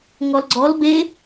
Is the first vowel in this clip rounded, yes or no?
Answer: yes